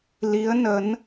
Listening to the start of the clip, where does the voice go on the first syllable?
rising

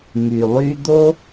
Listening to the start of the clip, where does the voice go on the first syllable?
low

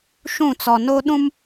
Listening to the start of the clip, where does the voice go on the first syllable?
falling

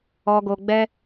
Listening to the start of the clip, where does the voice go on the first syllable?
low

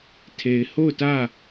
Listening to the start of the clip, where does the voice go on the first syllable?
low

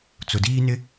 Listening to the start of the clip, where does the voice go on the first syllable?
low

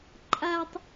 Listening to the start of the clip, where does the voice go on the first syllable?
high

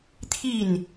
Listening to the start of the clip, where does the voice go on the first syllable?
falling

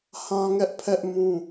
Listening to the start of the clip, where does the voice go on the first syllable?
high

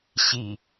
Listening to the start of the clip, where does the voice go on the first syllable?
low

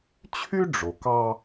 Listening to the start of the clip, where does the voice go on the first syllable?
high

